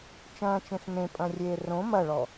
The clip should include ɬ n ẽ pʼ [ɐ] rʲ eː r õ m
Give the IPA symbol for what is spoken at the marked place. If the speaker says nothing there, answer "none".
ɐ̃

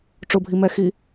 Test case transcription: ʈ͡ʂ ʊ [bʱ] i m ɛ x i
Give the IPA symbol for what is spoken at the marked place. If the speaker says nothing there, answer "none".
bʱ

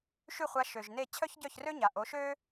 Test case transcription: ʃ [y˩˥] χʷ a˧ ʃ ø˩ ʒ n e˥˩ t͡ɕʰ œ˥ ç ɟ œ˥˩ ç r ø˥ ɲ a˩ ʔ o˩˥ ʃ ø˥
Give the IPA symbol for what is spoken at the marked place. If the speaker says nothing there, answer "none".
y˥˩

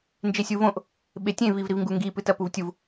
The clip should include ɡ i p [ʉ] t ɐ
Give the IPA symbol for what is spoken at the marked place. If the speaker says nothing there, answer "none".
ɨ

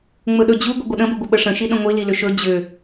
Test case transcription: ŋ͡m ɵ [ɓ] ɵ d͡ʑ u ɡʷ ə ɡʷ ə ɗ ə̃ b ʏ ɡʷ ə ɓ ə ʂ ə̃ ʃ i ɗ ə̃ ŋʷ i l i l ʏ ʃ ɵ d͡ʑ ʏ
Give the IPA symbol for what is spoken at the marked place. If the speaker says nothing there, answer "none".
ɗ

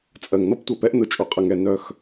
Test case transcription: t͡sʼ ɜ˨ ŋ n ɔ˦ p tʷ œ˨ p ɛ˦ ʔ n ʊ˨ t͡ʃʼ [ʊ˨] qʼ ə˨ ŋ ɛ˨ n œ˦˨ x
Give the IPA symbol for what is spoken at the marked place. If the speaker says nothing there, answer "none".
ʊ˨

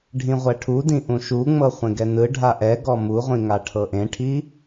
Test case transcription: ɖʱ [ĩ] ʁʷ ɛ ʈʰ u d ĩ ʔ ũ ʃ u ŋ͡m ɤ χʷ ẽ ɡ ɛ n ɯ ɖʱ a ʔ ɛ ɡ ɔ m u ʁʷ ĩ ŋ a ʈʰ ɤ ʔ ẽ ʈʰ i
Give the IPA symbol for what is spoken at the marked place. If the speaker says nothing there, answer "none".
ĩ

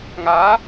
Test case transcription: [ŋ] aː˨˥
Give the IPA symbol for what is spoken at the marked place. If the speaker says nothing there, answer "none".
ŋ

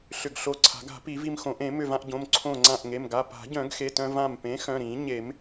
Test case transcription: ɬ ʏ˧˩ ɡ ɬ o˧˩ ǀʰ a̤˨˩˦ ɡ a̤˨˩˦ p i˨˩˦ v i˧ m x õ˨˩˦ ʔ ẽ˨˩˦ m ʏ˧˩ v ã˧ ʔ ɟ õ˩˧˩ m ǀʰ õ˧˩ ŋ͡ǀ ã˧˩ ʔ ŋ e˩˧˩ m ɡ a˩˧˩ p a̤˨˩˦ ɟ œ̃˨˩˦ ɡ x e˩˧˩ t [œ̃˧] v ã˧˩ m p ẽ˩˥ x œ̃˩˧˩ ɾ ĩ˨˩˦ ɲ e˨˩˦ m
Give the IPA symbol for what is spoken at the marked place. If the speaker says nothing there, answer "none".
œ̃˧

